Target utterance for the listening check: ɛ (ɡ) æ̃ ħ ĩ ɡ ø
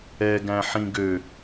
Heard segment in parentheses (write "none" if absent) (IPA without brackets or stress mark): ɡ